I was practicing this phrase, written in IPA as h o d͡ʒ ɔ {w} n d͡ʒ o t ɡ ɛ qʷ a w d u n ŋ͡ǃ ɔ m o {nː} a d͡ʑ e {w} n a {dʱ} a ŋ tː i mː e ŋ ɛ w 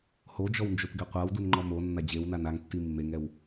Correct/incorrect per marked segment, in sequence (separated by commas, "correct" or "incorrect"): correct, correct, correct, incorrect